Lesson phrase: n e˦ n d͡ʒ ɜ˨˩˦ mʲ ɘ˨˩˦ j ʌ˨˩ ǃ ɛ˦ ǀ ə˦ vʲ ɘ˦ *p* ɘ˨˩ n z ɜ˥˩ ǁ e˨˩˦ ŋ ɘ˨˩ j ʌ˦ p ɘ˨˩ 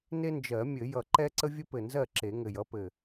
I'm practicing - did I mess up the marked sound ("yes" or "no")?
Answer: no